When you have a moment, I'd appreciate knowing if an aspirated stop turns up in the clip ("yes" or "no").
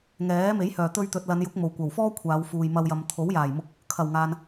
yes